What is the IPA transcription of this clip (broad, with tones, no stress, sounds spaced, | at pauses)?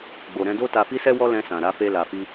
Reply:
ɡ͡b o˨ ɾ ɛ̃˧ d o˦ t a˧ f i˦ s ɛ˦ w ɔ˦ l ɛ̃˧ s ã˨ ɾ a˨˦ f e˦ l a˧ f i˦